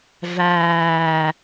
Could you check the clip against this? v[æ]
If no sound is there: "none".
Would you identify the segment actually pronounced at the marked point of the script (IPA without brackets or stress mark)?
æː